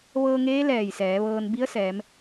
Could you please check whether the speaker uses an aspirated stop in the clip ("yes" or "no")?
no